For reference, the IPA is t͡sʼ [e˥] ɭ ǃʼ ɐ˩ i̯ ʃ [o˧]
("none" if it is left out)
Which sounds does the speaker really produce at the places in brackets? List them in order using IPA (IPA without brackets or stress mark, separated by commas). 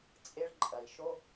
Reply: e˧, o˧